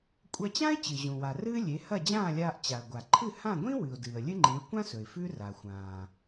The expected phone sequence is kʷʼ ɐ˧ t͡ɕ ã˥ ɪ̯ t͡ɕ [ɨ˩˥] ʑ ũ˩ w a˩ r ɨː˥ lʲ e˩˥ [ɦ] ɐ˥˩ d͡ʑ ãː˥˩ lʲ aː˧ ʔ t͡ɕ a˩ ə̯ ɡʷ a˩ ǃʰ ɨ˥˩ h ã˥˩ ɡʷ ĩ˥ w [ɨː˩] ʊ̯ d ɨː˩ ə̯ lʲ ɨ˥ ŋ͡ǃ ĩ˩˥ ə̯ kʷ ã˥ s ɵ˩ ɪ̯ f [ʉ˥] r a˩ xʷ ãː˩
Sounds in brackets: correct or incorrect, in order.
incorrect, incorrect, incorrect, correct

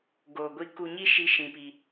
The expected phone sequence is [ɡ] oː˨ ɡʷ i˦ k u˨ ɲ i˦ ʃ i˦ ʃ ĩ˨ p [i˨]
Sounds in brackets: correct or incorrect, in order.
correct, correct

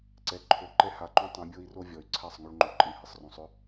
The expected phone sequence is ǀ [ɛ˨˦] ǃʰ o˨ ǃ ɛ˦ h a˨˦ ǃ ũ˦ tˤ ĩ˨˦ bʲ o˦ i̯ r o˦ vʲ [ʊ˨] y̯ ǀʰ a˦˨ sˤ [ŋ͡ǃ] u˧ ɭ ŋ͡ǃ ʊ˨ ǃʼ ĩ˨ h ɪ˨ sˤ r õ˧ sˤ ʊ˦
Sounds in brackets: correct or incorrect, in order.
correct, incorrect, incorrect

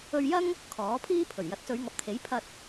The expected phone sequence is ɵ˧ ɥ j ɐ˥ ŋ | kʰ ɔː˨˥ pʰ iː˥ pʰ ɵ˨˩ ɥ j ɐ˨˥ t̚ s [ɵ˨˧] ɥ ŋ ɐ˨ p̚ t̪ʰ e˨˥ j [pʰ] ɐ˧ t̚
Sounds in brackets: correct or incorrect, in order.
correct, correct

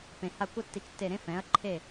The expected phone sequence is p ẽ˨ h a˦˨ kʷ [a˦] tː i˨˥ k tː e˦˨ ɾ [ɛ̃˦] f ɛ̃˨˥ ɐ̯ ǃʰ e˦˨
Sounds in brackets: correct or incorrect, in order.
correct, incorrect

